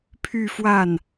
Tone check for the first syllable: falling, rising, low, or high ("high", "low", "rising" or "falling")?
falling